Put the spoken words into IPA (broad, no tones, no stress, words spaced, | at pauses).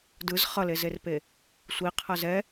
dɯz χʌlezerpe | sʷiqʰʌ zɛ